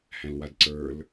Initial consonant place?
glottal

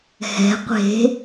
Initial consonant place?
glottal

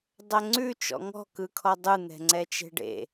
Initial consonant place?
alveolar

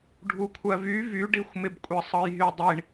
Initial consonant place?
retroflex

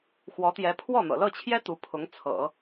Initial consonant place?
velar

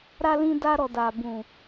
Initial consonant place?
alveolar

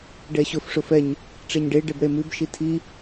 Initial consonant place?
retroflex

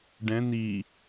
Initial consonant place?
retroflex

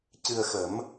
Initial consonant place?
palatal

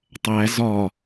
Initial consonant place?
alveolar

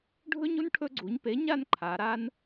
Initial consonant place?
retroflex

